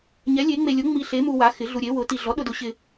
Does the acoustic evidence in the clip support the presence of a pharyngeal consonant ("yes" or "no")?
no